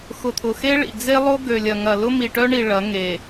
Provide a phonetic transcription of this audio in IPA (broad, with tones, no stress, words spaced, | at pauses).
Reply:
xʊ˨t̪ʰʊ˨xe˦ɭḭ˨ d͡ze˦lˠo˦ ɡø˨lʲɐ˨ŋɐ˨ lʊ˦mi˨ʈœ˦ɳi˨ ɭɐ˨˦ŋe˨